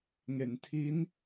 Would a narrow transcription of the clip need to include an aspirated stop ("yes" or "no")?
yes